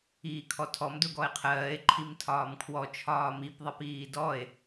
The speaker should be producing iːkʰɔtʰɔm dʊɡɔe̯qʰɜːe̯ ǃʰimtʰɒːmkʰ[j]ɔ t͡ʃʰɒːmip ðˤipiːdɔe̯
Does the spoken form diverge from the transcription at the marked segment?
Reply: yes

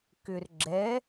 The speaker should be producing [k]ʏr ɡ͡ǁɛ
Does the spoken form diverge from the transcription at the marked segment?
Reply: no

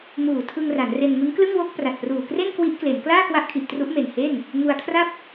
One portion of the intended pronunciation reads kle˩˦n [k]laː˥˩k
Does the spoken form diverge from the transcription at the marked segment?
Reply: no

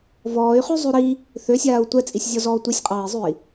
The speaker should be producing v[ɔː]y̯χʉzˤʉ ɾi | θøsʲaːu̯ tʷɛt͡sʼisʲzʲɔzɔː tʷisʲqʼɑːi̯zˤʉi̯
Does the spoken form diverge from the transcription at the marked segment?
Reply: no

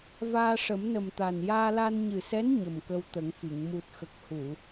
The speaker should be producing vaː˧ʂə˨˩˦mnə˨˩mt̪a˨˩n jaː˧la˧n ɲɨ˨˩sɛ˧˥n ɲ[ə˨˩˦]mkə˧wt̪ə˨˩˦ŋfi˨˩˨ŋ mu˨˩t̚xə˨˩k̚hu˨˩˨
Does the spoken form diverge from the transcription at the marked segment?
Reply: yes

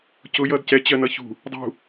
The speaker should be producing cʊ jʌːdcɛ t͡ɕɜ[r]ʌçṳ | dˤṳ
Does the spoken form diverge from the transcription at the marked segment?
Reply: yes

